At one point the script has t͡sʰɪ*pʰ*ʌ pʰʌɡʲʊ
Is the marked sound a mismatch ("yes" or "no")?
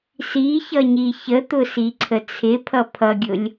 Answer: no